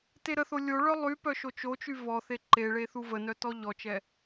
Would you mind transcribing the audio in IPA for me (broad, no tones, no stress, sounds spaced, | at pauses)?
t e ɾ ə θ o lʲ o ɭ œ lˠ y p œ ʃ o t͡ʃ o t͡ʃ y v ɔ θ e ǃ e ɭ e θ u v ə n œ t ɔ ʎ ɔ t͡ʃ ɛ